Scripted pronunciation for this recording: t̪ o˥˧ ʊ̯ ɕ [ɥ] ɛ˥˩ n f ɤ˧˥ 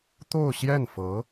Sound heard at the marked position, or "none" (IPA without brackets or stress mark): j